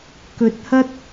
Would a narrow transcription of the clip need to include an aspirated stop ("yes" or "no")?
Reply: no